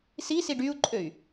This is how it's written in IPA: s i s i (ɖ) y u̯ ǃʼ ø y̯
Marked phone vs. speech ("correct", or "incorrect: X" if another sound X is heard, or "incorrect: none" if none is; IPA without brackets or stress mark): correct